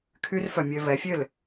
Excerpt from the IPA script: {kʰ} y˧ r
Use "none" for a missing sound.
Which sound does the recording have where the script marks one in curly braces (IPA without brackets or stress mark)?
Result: kʰ